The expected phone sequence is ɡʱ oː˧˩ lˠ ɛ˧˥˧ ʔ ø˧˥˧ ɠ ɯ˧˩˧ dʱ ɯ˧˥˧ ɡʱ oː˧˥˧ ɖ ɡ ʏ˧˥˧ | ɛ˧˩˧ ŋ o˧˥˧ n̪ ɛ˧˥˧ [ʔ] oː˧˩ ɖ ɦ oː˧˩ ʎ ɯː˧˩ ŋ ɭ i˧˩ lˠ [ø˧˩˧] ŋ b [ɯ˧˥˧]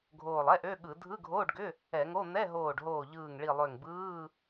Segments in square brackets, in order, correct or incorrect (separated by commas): incorrect, incorrect, incorrect